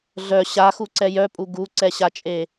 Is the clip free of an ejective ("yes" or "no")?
no